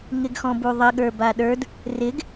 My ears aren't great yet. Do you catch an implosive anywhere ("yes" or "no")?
yes